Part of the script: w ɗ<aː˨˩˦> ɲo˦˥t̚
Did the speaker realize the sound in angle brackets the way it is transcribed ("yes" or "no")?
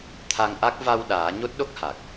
yes